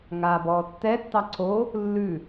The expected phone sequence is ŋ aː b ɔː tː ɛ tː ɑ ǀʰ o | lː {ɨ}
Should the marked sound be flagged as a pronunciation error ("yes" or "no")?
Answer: yes